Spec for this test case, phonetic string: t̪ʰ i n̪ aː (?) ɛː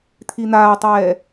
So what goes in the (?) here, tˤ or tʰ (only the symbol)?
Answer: tˤ